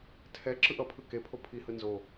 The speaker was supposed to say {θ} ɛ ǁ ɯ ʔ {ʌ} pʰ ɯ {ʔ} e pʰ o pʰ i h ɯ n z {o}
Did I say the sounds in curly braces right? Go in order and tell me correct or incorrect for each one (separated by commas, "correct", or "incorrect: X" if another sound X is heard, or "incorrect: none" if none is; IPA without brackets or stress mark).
incorrect: tʰ, correct, incorrect: k, correct